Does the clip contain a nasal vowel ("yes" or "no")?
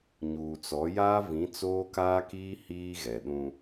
yes